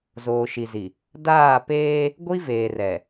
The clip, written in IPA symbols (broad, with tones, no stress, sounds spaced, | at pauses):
z oː˨ ʃ i˨ z i˨ | d aː˦˨ p eː˦ | ɡʷ i˦ v eː˨ r ɛ˨